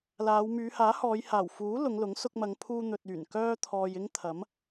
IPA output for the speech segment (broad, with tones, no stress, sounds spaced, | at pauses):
l aː˨˧ w m yː˨˧ h aː˨˥ h ɔː˨˧ j h aː˨˩ w f uː˨˥ l ʊ˨˧ ŋ l ʊ˨˥ ŋ s ʊ˧ k̚ m ɐ˨˧ ŋ pʰ uː˧ n̪ ɵ˨ t̚ yː˨˩ n k œː˥ t̪ʰ ɔː˧ j ɪ˥ ŋ t̪ʰ ɐ˨˥ m